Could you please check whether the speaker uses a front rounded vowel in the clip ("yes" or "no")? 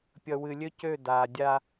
yes